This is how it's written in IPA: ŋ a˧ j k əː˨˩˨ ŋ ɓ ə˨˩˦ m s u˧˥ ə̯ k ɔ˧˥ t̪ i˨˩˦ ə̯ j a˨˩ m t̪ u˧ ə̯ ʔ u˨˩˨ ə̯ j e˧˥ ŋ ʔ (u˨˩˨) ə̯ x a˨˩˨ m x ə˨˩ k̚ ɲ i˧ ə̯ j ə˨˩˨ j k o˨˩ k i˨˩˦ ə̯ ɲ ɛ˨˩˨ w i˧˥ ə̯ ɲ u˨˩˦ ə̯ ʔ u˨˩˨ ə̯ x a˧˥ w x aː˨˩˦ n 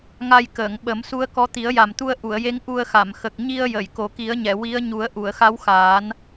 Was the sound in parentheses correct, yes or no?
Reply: no